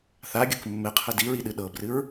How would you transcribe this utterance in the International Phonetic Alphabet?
θ a ɡʲ ɤ k mː ɘ qʰ ɘ d i ɹ i ɗ ɨ ɗ ɤ b r ɨ ɹ

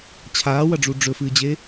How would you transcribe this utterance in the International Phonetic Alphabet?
t͡ɕʰ aː w ɐ ɖ͡ʐ u ɖ͡ʐ ɵ f ɨː d͡ʑ e

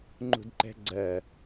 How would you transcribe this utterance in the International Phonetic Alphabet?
ŋ͡ǃ ṳ d ǃ ɛ̤ ɡ͡ǀ ɜ

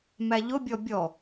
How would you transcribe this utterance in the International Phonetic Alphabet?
m æ ʎ ʊ bʲ ɔ bʲ ɔ

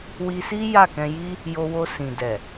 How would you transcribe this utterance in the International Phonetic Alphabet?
w i˧ s i˦ j a˦˨ k ɛ̃˧ j i˦ | j o˧ w o˧ s ĩ˨ d ɛ˨

